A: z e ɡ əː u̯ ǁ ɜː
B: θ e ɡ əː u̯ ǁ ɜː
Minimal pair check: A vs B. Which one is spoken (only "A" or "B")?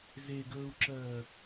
A